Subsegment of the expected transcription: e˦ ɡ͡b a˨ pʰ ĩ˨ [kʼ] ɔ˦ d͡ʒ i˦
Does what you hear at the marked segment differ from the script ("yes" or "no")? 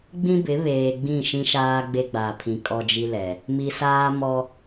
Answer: no